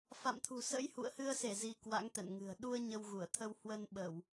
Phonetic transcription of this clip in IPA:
f a̰˧˨ m t̪ʰ ṳ˨˩ s ə̰˧˥ j h ṵ˧˨ ə̯ h ɨ˧ ə̯ s e˧˩ z i˧ k w a̰˧˥ ŋ t̪ ɛ̰˧˨ n ŋ ɨ̤˨˩ ə̯ ɗ u˧ ə̯ ɲ ə˧ w ɣ u˧˩ ə̯ t̪ʰ ə˧ w h w ə˧ n ɓ ə˧˩˨ w

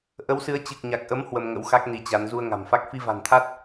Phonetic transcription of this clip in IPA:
ʔ ə˨˦ w s ɨ˨˦ ə̯ t͡ɕ ɨ˨˩ k̚ ɲ a˨˩ k̚ ʔ ə˨˦ m h w ə˧ m ŋ ə̰˧˥ w x a˦˥ k̚ n i˨˦ t͡ɕ a˨˦ n z u˧ ə̯ ŋ a̤˨˩ m f a˦˥ k̚ f i˧ v a̤˨˩ n t̪ʰ a˦˥ t̚

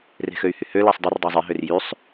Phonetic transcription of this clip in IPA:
r e̤ x ø y̯ h y h ø l æ sˤ dˤ u r dˤ ø zˤ i ɦ ø r j y sˤ

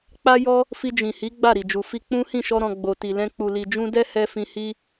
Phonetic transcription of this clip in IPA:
k͡p a˦ j ɔ˦ | f i˧ d͡ʒ ĩ˨ h i˨˦ ɡ͡b a˦˨ ɾ i˨ d͡ʒ u˨ f i˧ k͡p ũ˦ h ĩ˦˨ ʃ ɔ˧ ɾ ɔ̃˧ ɡ͡b o˨ t i˨ l ɛ̃˧ k͡p u˨ l i˨ d͡ʒ ũ˧ d ɛ˦ h ɛ˦ f ĩ˧ h i˦

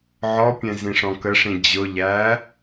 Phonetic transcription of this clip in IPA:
ʕ ɔ pʲ ɛ̃ z ĩ ʂ ɔ̃ k ə ʂ ĩ d͡ʑ ʊ ʎ æ

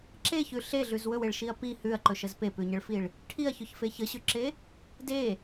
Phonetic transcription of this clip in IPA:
ǁ e ç ʉ ɬ e ɮ ʉ z w ɵ w e ɭ ʃ i ɐ̯ p i h ʉ ɐ̯ ǃ ɵ ʃ ə z p e p ʉ ɲ ə ɭ f i ɭ | ʈʰ i ɐ̯ ç ɵ ç f e ç ə ɕ ʉ ǁ e | d e

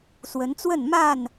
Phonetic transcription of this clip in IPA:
s w ə˨˦ n t͡s w ə˥˨ n m a˥˨ n

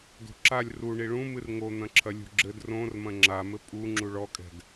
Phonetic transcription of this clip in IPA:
d o̤ ǁ a lʲ r u ɳ i ɭ ũ m ɨ r ŋ o n̪ ɐ̃ ǁʰ ɐ lʲ ṳ ɡ͡ǁ ɘ d r õ r m ɐ̃ ŋ͡ǁ a m ɘ pʼ u ŋ͡ǁ u ɭ ɔ kʼ ɛ̤ d

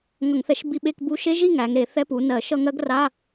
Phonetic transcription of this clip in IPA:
ŋ ʌ˧˩˧ ŋ θ ɛ˧˩˧ ʃ b i˧˥˧ ɓ e˧˥˧ k b u˦˥ ʃ e˦˥ ʒ i˥˧ ŋ æ˩˧ ŋ ɾ e˧˩˧ θ ɛ˦˥ p u˩˧ n ɜ˧˩˧ ʃ ʌ˥˧ ŋ ɜ˦˥ ɡ r a˧˥˧

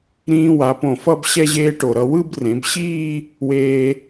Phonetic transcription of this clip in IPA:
ɾ ĩː˧ w a˩˧ p õ˧˩ f ʌ˥˧ b ɕ ɛ˧ ʑ eː˧ ʈ o˧˩ ɾ ʌ˥˧ w ɯ˥˧ b r ẽ˩˧ b ɕ iː˥˧ | w eː˧

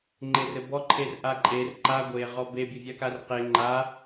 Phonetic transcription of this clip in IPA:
ŋ͡ǃ e r ɘ b ɔ ǃʰ e r ʔ a ǃʼ e r ǃ a ɡʷ e ʁ ɔ b e bʲ ɘ vʲ a k a r q e ŋ͡ǃ a

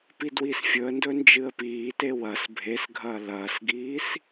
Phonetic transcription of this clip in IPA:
p i d w i s fʲ ɵ ə̯ n d ɵ n d͡ʒ ɨ ə̯ p iː t e w ɐ s bʱ e s ɡʱ ɐː l ɐː s ɡ iː s

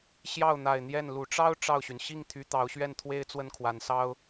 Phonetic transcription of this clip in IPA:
ɕ j ɑ˥˩ ʊ̯ n̪ a˨˩ ɪ̯ n̪ j ɛ˥˩ n l u˨˩ ʈ͡ʂ ɑ˥ ʊ̯ ʈ͡ʂ ɑ˥˩ ʊ̯ ɕ y˩ n ɕ i˥˩ ŋ t̪ʰ y˧˥ t̪ ɑ˧˥ ʊ̯ ɕ ɥ ɛ˥˩ n t̪ʰ w e˥ ɪ̯ t͡s w ə˥˩ n kʰ w a˧˥ n s ɑ˥ ʊ̯

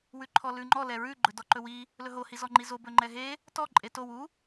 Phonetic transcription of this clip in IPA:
w ʉ ǃʰ ɔ l ʉ ŋ͡ǃ ɔ l ɛ ɹ ʉ ɡ͡ǃ ɵ d ɔ ǃ ɵ w i | l ɵ ɦ o h i z ɔ ŋ͡ǃ i z o b ɵ ŋ͡ǃ ɛ ɦ e | t ɔ ǃʼ e t o w u

